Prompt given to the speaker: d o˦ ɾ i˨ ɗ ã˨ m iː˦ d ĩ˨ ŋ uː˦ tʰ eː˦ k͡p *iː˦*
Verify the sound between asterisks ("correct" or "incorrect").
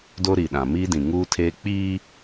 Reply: correct